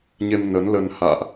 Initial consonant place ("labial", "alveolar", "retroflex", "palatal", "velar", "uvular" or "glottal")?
palatal